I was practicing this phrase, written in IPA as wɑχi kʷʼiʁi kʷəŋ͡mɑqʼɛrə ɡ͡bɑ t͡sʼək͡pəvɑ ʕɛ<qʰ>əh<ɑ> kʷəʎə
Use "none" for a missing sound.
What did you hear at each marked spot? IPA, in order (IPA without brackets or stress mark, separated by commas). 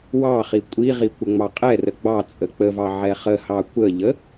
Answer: χ, ɑ